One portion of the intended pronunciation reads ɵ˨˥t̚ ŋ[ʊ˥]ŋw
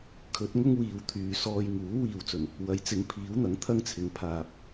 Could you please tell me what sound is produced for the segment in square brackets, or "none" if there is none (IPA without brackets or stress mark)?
ʊ˥